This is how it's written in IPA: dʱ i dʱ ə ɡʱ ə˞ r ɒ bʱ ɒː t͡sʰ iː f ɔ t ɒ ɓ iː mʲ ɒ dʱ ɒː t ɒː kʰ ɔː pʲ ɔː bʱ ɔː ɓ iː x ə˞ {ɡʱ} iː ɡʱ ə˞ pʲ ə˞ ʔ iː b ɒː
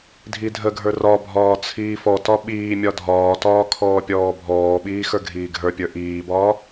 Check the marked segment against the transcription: correct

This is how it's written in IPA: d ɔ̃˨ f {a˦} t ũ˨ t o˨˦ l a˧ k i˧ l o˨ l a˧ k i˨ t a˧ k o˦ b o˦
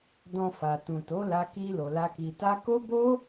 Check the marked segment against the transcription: incorrect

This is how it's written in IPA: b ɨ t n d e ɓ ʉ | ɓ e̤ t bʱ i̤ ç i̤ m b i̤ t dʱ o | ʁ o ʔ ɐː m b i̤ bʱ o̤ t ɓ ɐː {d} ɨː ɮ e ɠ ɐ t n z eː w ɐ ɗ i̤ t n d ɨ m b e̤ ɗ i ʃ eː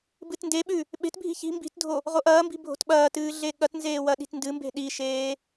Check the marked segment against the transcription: incorrect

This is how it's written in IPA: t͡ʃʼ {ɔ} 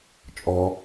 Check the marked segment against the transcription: correct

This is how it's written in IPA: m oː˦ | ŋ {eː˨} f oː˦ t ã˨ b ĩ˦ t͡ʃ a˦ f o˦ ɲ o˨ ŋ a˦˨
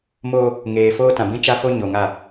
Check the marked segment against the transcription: correct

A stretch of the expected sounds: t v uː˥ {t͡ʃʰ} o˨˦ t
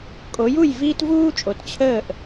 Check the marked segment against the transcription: incorrect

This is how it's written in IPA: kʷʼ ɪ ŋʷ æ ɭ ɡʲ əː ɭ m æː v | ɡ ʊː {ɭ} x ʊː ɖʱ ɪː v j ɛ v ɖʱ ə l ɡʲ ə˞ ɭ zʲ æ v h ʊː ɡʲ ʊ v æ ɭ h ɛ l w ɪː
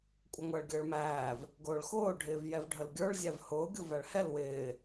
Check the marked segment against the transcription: correct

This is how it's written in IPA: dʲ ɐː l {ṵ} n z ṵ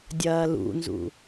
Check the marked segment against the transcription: correct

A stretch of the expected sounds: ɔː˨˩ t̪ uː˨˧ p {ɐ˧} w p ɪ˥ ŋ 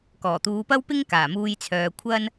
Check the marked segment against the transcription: incorrect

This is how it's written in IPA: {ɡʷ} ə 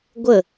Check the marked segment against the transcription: correct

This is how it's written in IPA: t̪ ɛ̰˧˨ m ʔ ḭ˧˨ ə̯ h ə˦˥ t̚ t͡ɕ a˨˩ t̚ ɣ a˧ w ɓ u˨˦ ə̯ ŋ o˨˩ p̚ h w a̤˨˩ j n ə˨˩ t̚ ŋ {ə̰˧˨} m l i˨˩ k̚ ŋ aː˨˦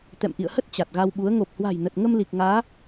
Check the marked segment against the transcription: incorrect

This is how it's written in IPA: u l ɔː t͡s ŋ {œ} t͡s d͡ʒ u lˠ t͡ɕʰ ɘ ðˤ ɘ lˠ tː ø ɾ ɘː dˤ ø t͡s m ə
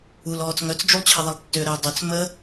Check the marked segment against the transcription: correct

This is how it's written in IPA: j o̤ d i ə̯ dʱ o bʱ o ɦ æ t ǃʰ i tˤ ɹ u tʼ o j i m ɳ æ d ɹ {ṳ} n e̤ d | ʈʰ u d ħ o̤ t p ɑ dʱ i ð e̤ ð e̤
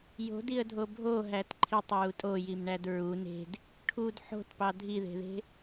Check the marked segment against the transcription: incorrect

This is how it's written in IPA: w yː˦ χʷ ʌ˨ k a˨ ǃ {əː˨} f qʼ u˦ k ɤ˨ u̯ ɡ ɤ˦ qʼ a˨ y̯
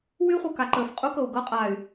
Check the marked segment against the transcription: correct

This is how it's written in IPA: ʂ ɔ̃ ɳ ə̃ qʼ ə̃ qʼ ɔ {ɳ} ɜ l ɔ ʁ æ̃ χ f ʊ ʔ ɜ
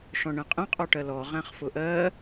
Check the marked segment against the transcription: incorrect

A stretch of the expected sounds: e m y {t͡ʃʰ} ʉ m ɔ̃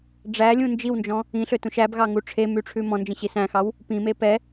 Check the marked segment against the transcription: incorrect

